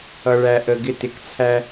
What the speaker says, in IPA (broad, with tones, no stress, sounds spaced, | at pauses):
ʌ˨ ɭ æ˨ ʔ ə˨ ɡ ɪ˦˨ t ɪ˨ k t͡sʰ æ˦